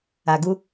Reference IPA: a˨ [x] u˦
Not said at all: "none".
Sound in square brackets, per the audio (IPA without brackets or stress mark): ɡ